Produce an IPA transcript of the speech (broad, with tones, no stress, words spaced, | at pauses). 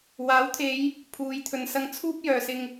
waː˨˥wt̪ʰe˨˧j | pʰuː˨˧j t̪ʰɵ˨nsɐ˧ŋt͡sʰuː˥p̚ jœː˨sɪ˧ŋ